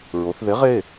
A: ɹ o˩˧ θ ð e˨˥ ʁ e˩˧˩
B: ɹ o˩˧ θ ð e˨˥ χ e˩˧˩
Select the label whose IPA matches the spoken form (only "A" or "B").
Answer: A